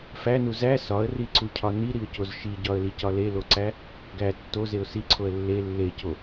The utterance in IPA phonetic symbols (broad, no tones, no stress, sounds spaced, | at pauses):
f æ n u z æ s ɒ ə̯ r i ǀ u cʰ ɒ n i ɾ i ʊ̯ c o z ʃ i ɟ ɒ ə̯ l i c ɒ l e l o ǀ æ | ɡ æ tː o z e ʊ̯ s i ǀʰ o ə̯ lː e lː e c o